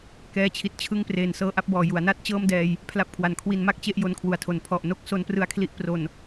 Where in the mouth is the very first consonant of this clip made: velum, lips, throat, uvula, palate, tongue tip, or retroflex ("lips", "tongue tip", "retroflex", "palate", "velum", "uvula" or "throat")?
velum